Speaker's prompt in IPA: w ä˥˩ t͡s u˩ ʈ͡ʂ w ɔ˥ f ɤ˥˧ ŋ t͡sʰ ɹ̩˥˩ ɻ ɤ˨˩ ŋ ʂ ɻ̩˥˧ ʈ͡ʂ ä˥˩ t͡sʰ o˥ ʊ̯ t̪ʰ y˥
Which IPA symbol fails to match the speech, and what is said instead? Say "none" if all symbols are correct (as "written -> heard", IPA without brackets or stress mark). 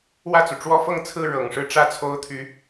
y˥ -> y˧˥